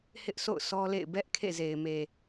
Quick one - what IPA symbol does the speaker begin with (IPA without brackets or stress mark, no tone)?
h